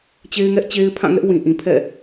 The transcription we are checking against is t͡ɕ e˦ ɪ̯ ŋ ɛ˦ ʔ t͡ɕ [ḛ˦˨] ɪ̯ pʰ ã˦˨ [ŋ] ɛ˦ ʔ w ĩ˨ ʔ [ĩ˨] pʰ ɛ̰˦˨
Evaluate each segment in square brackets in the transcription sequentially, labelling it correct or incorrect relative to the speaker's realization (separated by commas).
incorrect, correct, correct